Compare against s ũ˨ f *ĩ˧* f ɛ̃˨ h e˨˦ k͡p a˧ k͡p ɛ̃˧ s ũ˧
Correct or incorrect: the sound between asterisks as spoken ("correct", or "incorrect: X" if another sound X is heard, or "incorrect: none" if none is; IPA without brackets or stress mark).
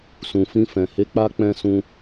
correct